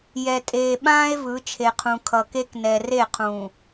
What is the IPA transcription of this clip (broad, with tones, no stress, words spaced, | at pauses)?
jɛ˨tʼeː˨ɓãː˦e̯ vɯ˨˦ t͡ʃʰe˨qʰũ˨ kʰʌ˨ke˦k nɛ˨ re˦˨qʰũː˨